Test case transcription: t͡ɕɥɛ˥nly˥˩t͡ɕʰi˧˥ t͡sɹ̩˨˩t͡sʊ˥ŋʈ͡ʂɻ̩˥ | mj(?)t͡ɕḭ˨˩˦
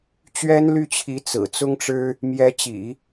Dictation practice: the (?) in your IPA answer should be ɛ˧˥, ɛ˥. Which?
ɛ˧˥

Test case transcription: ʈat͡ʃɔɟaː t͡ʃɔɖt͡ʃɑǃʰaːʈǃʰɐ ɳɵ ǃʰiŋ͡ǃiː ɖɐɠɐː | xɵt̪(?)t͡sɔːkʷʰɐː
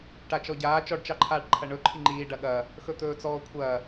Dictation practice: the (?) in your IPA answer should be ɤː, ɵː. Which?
ɵː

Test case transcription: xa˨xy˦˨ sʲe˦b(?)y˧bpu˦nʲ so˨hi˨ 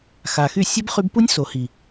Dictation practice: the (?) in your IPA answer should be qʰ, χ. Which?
χ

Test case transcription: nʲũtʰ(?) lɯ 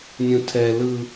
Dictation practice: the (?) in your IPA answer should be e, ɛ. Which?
ɛ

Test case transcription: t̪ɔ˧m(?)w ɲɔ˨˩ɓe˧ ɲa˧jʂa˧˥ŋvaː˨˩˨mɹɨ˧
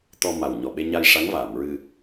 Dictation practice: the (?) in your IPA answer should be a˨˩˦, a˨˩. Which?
a˨˩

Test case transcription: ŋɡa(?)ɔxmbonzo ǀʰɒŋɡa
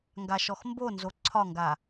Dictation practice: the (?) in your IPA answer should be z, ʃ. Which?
ʃ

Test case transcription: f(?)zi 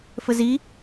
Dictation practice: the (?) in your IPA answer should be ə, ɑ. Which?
ə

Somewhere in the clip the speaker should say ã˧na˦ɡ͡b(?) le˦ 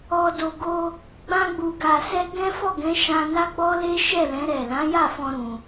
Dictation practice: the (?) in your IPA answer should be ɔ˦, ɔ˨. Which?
ɔ˦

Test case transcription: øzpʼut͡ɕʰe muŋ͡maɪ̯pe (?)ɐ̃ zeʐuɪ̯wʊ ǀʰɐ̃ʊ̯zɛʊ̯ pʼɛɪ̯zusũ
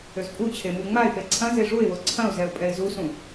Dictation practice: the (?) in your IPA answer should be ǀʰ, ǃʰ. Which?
ǀʰ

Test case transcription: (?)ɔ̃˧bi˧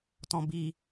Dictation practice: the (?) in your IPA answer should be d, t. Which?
t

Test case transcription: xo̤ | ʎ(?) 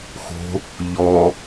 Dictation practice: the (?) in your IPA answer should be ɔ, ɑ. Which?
ɔ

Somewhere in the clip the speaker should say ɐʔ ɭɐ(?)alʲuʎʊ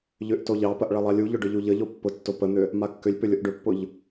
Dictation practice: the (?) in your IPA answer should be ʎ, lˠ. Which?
lˠ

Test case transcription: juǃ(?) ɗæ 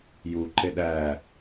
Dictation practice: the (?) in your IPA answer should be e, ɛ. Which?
e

